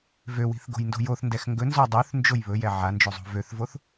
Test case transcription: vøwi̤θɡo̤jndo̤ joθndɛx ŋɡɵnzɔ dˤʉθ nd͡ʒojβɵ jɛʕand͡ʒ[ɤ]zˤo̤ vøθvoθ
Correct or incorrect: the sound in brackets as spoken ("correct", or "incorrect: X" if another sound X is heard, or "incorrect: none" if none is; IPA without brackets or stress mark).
incorrect: o